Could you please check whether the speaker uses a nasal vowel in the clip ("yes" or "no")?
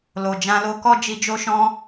yes